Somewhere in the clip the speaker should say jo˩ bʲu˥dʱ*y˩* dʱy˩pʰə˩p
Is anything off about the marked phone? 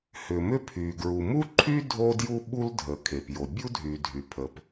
no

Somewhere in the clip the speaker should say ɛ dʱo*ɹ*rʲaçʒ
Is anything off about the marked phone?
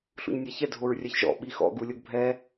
no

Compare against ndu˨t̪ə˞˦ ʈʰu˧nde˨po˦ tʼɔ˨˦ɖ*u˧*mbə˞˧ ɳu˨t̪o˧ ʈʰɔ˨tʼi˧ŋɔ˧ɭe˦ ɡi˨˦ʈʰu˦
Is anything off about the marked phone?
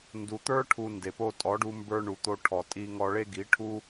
no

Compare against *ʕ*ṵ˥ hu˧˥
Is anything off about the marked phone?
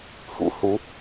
yes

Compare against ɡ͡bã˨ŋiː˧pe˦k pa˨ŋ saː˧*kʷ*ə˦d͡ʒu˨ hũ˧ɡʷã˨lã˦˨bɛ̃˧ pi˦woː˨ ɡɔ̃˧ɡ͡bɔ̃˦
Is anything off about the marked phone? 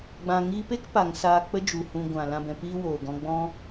yes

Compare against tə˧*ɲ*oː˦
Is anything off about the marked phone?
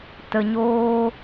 no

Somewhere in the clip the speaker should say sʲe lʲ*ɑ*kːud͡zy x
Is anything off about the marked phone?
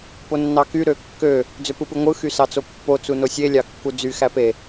no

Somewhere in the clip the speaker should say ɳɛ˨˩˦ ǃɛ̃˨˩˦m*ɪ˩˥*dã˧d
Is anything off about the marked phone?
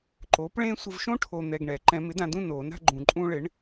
no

